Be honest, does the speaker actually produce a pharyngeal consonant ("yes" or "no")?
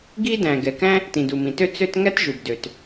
no